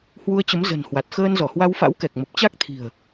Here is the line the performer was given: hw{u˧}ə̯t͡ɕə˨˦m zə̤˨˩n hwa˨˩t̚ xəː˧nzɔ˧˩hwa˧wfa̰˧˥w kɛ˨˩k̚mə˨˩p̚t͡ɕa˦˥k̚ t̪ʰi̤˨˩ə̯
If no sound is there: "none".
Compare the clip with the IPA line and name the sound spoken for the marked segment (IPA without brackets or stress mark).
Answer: u˧